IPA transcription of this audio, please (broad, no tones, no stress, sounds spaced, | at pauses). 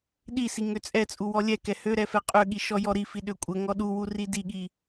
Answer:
ɗ i s i ŋ ø t͡sʼ ɛ t͡sʼ u w ɔ lʲ ɛ k ɛ h ø ɾ ɛ f ɛ qʼ ø ɠ i ʃ ɔ j ɔ ɾ i f i ɗ ø kʷʼ ə ŋ ɔ ɗ u w u r i d i ɠ i